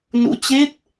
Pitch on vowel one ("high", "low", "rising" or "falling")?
rising